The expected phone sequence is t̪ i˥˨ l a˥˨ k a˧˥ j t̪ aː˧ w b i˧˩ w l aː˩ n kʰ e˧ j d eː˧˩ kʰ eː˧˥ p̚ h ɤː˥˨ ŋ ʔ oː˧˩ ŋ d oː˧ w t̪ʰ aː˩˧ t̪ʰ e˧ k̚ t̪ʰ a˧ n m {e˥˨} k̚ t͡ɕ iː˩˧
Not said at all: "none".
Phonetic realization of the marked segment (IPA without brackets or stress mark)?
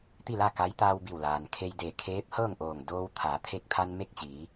e˥˨